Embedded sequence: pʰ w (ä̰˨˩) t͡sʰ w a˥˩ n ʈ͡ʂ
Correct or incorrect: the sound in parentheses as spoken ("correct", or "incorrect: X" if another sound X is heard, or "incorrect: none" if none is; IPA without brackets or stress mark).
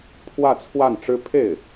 incorrect: ä˥˧